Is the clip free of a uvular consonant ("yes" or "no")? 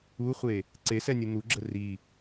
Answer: no